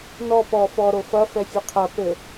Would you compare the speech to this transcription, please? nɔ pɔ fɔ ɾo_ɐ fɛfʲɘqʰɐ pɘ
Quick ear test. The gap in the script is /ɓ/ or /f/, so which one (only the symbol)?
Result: f